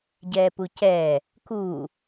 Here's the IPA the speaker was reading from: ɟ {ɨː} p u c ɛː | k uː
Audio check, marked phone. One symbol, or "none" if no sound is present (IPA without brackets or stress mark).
ɛː